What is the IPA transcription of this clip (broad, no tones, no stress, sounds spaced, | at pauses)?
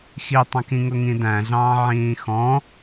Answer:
x i tˤ ɑ̃ k ĩ ŋ ʊ ŋ ĩ d æ̃ ɮ ɑ̃ː ʕ ĩː x ɔ̃